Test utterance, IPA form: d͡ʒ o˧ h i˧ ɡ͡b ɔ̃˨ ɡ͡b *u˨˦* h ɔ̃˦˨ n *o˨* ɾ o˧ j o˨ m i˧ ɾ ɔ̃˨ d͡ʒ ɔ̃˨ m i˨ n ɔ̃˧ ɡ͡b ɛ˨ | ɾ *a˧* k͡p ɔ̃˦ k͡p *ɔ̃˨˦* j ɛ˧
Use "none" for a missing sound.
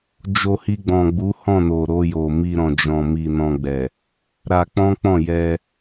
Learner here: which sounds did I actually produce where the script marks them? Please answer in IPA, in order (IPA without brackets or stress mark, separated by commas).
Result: u˨˦, o˨, a˧, ɔ̃˦˨